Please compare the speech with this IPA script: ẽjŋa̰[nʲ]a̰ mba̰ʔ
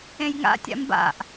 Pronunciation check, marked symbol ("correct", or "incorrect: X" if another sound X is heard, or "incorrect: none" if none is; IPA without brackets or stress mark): incorrect: tʲ